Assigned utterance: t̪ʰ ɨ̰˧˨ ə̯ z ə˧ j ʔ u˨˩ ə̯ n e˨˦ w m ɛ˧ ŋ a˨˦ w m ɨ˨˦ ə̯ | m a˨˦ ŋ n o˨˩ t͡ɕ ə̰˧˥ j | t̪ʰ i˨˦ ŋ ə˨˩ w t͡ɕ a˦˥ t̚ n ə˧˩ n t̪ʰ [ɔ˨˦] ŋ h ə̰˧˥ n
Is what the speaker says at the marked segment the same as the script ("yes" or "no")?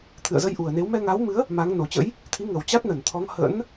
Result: yes